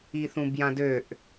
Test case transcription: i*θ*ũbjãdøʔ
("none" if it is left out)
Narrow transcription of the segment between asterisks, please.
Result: θ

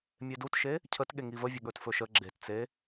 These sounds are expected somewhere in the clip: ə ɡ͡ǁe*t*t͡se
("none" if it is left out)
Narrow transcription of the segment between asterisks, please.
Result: t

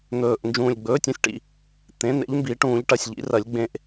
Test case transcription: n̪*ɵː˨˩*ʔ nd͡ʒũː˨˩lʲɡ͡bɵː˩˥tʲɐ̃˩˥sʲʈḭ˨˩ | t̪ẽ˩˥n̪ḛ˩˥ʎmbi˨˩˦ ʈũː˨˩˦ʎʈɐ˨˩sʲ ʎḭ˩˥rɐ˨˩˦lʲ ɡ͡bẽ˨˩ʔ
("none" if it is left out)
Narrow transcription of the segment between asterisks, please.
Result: ɵː˨˩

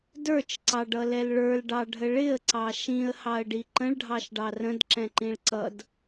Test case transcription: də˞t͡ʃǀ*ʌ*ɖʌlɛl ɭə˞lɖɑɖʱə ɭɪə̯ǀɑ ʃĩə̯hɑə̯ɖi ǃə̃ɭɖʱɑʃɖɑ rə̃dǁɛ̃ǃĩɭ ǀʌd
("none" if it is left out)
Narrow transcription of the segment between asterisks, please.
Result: ɑ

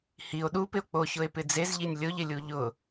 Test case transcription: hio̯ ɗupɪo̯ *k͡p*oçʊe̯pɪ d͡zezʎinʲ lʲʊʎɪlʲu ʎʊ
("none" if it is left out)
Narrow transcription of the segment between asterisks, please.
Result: k͡p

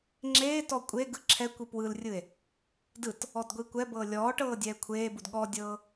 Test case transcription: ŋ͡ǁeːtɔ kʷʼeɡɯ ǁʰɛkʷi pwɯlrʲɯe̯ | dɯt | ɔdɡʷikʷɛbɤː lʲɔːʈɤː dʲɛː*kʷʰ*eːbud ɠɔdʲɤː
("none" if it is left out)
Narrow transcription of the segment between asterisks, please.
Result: kʷʰ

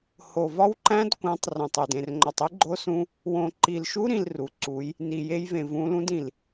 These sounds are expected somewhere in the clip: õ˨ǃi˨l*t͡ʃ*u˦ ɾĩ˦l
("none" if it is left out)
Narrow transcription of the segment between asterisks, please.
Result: ʃ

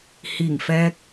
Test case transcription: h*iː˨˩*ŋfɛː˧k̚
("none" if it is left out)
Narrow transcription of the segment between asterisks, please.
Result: iː˨˩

